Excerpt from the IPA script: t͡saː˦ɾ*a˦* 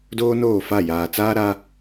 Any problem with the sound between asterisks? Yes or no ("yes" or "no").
no